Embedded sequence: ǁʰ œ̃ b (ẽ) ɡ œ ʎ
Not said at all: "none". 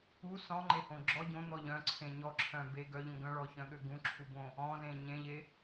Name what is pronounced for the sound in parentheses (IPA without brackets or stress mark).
e